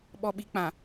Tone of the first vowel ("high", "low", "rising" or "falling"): low